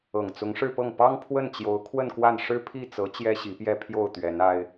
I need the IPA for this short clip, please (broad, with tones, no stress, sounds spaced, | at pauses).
ɤ˨˩ ŋ t͡s ʊ˧˥ ŋ ʂ ɻ̩˥˧ p ɤ˥˩ ŋ p ɑ˥ ŋ pʰ w ə˥˩ n t͡ɕ j o˧˥ ʊ̯ kʰ w ə˥˧ n k w a˥˩ n ʂ ɻ̩˥ pʰ i˥˩ t͡s ɤ˧˥ t͡ɕ j ɛ˥ ɕ i˧˥ p j ɛ˥˧ pʰ j o˥˩ ʊ̯ t̪ ɥ ɛ˧˥ n a˥ ɪ̯